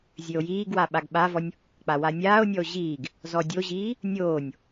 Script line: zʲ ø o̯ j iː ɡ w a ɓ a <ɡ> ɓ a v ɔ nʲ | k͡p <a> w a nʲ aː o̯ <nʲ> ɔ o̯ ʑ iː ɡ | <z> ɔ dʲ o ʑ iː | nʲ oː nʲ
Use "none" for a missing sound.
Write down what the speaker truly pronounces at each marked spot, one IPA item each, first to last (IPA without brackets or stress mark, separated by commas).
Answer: ɡ, a, nʲ, z